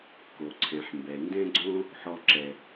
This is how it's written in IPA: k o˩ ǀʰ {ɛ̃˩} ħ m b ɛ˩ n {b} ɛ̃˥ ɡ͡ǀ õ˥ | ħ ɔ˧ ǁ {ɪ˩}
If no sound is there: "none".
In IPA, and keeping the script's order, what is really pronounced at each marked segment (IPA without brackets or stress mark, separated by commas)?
ɛ̃˩, d, ɛ˩